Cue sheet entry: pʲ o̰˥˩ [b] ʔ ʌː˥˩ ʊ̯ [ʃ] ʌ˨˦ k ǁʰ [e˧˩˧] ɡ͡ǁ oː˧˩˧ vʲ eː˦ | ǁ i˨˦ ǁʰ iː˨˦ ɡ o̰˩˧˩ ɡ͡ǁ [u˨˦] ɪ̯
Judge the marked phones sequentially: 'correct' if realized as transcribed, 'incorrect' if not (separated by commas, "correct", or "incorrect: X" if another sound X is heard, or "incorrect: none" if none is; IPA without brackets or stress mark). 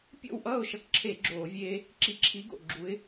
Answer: incorrect: w, correct, correct, correct